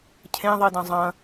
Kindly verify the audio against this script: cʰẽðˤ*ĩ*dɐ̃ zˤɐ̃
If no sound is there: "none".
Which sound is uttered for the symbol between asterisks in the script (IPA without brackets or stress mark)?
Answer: i